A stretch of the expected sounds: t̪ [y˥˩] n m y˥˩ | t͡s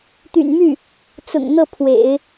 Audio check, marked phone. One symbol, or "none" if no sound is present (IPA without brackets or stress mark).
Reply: y̰˨˩